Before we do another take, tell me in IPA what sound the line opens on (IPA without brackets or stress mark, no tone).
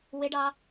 w